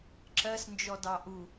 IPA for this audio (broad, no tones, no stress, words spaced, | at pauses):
ǁɜsnd͡ʒɔdɑ ʔu